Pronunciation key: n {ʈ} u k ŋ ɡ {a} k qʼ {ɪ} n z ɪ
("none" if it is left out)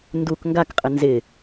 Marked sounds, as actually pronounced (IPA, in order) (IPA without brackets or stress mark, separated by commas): d, a, ɪ